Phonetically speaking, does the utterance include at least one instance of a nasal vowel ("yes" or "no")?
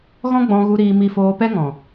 yes